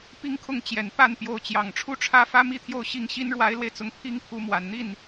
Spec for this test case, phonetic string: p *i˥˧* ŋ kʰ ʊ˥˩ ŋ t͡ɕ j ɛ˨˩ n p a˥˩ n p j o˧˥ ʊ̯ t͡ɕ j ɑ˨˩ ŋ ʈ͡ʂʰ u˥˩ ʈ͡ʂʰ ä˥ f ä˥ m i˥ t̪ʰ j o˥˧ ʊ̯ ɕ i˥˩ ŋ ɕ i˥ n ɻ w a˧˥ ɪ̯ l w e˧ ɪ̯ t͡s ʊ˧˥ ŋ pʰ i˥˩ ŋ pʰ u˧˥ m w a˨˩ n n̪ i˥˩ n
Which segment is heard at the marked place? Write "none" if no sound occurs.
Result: i˥˧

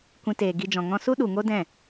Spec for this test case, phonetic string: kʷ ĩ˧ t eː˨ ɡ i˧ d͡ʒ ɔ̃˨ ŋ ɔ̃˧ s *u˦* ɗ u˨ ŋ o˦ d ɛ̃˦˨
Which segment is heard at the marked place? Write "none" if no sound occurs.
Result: u˦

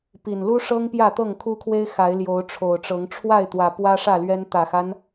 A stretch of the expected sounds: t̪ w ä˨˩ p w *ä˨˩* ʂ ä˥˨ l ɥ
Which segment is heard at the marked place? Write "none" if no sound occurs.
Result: ä˦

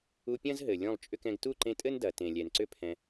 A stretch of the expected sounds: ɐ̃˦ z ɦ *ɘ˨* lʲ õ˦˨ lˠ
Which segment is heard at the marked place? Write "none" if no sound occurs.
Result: ɘ˨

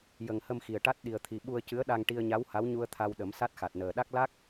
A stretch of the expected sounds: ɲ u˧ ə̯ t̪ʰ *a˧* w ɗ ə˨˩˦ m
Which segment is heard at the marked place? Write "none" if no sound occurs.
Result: a˧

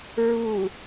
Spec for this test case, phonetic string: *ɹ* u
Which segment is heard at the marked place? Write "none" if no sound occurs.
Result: ɹ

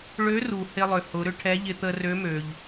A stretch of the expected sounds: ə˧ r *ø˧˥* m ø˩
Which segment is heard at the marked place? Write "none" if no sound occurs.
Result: ø˧˥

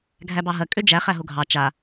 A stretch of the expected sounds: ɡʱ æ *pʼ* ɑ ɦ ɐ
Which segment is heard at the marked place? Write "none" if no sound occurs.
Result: b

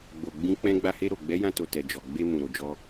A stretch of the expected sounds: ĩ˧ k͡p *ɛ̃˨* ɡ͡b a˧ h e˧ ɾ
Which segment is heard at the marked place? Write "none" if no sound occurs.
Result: ɛ̃˧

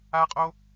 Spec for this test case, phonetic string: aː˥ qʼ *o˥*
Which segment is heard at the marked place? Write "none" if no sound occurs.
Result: o˥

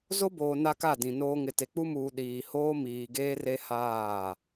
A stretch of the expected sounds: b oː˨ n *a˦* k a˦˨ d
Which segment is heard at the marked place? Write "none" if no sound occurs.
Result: a˦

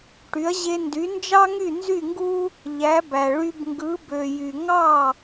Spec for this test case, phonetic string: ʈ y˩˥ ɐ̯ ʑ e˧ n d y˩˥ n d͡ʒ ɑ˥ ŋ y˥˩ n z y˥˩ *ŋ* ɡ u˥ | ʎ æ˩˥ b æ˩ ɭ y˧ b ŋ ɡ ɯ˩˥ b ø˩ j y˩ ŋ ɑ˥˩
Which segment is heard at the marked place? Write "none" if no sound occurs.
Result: ŋ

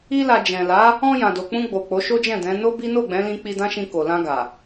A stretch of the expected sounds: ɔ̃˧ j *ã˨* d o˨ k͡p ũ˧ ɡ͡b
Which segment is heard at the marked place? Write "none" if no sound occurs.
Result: ã˨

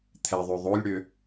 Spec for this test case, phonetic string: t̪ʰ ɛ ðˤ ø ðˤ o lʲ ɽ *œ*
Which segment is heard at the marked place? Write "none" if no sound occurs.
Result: ø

